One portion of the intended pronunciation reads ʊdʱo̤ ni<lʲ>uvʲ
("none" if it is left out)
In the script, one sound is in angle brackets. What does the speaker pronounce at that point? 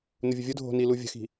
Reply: l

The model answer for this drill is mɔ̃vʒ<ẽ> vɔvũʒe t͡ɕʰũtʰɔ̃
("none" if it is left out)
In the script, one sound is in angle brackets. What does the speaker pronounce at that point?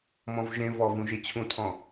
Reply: ẽ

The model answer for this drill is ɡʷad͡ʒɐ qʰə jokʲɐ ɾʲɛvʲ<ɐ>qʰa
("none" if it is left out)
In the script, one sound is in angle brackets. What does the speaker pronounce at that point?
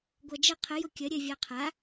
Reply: a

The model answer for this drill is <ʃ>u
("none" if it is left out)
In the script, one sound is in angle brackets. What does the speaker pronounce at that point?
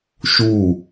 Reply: ʃ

